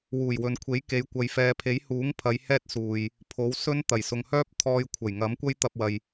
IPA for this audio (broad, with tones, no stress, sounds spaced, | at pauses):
w uː˨˩ j w ɵ˨ n kʷʰ e˨˥ j k e˨˧ j kʷ ɐ˨ j f ɛː˨ pʰ e˨˥ j h uː˨˥ ŋ pʰ ɐ˨˧ j h ɛː˥ t̚ s uː˨ j | pʰ o˨˥ w s ɵ˥ n t̪ ɐ˨˩ j s ʊ˨ ŋ h œː˥ p̚ t̪ʰ ɔː˧ j kʷʰ ɐ˨˩ j ŋ ɐ˨˥ m kʷ ɐ˥ j t̪ ɐ˧ p̚ w ɐ˨ j